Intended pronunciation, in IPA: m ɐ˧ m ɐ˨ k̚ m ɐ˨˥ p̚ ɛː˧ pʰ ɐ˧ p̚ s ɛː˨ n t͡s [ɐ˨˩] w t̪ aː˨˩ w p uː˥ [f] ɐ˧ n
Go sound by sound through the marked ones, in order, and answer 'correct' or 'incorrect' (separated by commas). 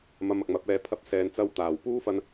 incorrect, correct